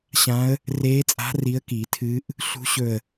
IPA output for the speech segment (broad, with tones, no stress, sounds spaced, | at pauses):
ɕ ã˧˥ ə̯ | r eː˧˥ t͡sʼ a̤˧˥ r i˧˥ ə̯ k i˨˩˦ tʰ ɨː˧˥ ʔ | ɬ ṳ˧˥ ɕ ɵ˧˩ ə̯